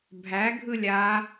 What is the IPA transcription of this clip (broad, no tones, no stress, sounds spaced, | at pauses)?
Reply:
bʱ æ ɡʱ ɯ lʲ a